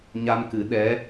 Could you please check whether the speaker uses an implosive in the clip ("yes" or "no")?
yes